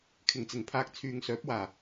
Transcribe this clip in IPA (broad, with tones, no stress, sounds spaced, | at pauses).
kʰ ɪ˨˩ ŋ t͡s ɪ˨˩ ŋ pʰ aː˨ k̚ t͡sʰ yː˨ ŋ s œː˨˥ p̚ w aː˨˩